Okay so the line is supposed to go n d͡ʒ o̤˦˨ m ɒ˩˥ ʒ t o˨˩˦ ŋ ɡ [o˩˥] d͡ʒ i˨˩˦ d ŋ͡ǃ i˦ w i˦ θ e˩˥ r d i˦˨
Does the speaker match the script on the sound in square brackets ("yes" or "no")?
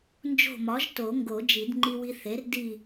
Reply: no